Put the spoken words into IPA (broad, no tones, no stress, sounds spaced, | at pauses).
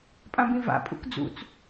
pʼ ã b ĩ v a̰ pʼ ṵ k d͡z ṵ t͡s